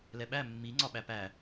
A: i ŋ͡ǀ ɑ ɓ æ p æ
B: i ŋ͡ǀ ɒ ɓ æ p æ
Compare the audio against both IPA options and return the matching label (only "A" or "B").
B